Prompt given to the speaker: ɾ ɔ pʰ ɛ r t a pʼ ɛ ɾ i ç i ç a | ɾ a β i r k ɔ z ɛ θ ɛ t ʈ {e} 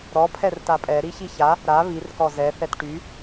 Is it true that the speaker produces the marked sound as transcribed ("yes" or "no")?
no